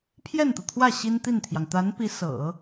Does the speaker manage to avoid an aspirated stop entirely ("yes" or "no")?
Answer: no